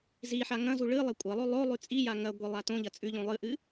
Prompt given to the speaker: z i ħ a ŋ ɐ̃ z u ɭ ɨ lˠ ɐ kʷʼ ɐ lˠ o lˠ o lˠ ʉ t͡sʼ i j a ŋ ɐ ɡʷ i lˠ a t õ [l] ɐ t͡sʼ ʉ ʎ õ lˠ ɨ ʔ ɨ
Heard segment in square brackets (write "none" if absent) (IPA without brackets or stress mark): ʎ